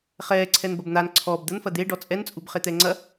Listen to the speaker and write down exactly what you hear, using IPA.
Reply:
χ ɛː ǀʰ ɛ n b ɐ b n̪ a n ǀʰ ɔ b d̪ ə n f ɐ d̪ e ɖ ɔ t͡sʼ ɛ n t͡sʼ u b χ e t̪ ɛː ŋ͡ǀ ɐ

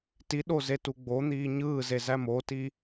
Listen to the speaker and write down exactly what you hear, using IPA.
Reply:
t i ɗ o z e t u ɡ͡b o n̪ iː ɲ ɯː z e z æ m o t i

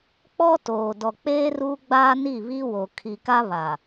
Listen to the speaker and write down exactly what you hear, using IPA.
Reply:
k͡p ɔ˦ t oː˨ d ɔ˨ k͡p eː˦ r uː˦ ɡ͡b aː˦ n i˦˨ β i˦ w o˨ kʰ i˨ k a˦ β a˨

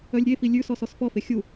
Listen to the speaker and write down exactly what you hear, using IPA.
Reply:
œ lʲ ɾʲ e f i lʲ ʉ s ɔ s ɔ s f ɔ f e xʲ u

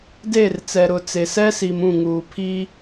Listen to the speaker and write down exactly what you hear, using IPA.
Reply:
d e˦˨ r t͡s ɛ˨ ɾ ʊ˨ t͡s e˨ s ɛ˦ s i˨ m ũ˦˨ ŋ uː˨ pʰ i˦

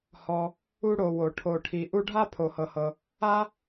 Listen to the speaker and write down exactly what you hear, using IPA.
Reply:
h ɔ˨ | u˥ ɽ o˨ w o˩ ʈʰ o˩ ʈʰ i˩ ʔ u˦ ɖʱ a˥ pʰ o˩ h ɤ˩ h ɤ˩ | a˥

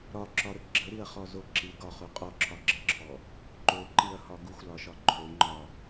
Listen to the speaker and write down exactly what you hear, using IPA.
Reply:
ɾ ɒ ǁ ɒ ɾ ə ɡ͡ǁ ə ɾ i ɐ̯ χ ɔ z o ǁ i ɡ ɒ χ u qʼ ɔ ǁʰ ɒ ɡ͡ǁ ə ǁʰ ɔ | ǃ o ǃ i ɐ̯ h ɒ ɡ u xʷ l ɒ ʃ ɒ ǃʰ o ŋ͡ǃ ɒ

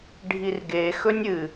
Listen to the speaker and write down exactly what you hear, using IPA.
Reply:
ɖʱ i r ɡ e x ɵ nʲ ɨ

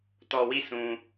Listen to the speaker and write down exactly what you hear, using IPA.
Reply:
t ɔ˨ w i˦˨ s ũ˨

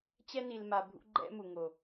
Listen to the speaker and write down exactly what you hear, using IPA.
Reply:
t͡ɕ ɛ˧ n i˨ l m a˨ bʱ ṵ˦ ɡ͡ǃ ɛ̰˦ m u˨ ŋ o˨

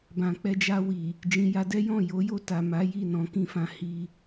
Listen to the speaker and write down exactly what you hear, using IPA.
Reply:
b ã˨ k͡p ɛ˧ d͡ʒ a˧ w i˨ | d͡ʒ ĩ˨ j a˨˦ d ɛ˦ j ɔ̃˦˨ j o˨˦ j o˦˨ t a˨ m a˨˦ j i˦˨ n ɔ̃˨˦ k ĩ˦ f ã˧ h i˧

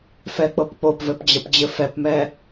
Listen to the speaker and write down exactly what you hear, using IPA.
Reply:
f ɛ k͡p ɤ p k͡p o p v ɘ p d͡ʑ ə p d͡ʑ ɘ f ɛ p m ɛ

